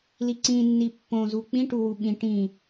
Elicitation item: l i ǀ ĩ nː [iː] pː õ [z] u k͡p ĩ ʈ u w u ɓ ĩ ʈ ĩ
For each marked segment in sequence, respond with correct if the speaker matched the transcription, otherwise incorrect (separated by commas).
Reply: incorrect, correct